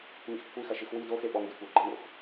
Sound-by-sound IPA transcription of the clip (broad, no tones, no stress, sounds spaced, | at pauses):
ŋ ḭ x kʷʰ i x ɐ ʃ ɨ x w i d o x e ɓ ɔ ŋ d ḭ kʷ ɐ ɡ͡ǃ ɘ ŋ o̰ x